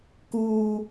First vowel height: high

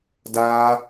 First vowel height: low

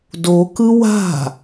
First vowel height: mid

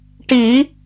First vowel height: high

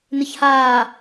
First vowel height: high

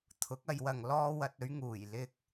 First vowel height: high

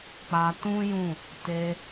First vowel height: low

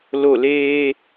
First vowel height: mid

